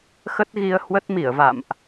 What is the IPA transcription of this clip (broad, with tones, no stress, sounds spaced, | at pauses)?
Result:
x ə˦˥ t̚ ɣ i˧ ə̯ h w ə˦˥ t̚ m i˧˩ ə̯ v a̰˧˨ m ʔ